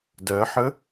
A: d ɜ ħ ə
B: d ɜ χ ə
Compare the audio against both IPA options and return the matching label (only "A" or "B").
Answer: A